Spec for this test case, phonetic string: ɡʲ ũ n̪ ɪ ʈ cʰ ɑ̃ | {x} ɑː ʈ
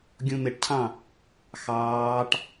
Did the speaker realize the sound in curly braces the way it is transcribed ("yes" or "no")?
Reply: yes